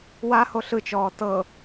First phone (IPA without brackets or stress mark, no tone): w